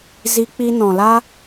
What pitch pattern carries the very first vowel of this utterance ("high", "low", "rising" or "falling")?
high